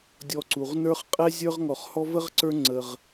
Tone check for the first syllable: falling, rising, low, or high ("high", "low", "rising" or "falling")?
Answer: low